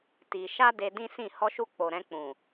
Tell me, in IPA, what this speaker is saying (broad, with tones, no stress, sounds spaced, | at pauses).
t i˧ ʃ a˦ d e˧ d ĩ˦ s ĩ˦˨ h ɔ˧ ʃ u˧ k͡p o˨ ɾ ɛ̃˧ k͡p ũ˨